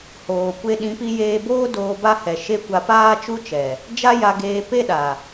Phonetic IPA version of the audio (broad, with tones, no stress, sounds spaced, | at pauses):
h oː˨ kʷ e˦ ɗ ĩ˨˦ p i˧ j eː˧ b oː˦ d oː˧ b a˦ h ɛ˨ ʃ e˦ kʷ a˧ p aː˦ t͡ʃ u˦ t͡ʃ ɛ˨ | d͡ʒ a˦ j a˧ ɡ eː˧ p e˦ ɗ a˨